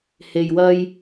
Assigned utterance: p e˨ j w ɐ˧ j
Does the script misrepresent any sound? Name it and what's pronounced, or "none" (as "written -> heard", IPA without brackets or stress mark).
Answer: p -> h